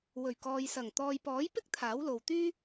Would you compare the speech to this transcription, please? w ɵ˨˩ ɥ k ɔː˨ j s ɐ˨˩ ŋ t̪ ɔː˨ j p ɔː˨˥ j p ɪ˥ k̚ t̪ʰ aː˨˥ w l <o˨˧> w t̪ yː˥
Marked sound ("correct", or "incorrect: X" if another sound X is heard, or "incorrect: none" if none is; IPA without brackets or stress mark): incorrect: o˨